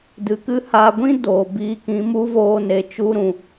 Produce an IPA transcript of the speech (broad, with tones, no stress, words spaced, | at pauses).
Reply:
dɨ˨˦kɨ˦haː˧ ɡʷĩ˦ doː˨biː˧kĩ˨˦ mu˦voː˧ ne˨t͡ʃu˧ɾũ˨